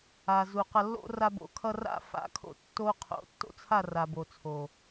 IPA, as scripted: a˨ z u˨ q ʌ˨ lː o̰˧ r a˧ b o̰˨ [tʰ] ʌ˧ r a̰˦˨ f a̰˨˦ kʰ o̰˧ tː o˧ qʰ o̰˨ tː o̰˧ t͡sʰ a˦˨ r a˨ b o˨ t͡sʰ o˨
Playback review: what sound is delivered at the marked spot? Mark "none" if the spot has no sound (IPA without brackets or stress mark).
kʰ